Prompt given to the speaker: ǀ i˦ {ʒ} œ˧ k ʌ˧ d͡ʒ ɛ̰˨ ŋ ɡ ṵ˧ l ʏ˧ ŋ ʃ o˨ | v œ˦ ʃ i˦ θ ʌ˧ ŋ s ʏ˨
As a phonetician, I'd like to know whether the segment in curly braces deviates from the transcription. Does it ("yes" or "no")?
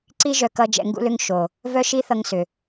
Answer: no